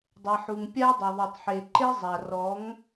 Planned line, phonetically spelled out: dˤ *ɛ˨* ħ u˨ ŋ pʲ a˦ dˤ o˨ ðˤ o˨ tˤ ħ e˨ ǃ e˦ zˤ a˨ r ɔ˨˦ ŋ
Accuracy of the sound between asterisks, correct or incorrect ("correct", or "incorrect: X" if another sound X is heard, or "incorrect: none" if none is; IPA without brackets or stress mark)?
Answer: correct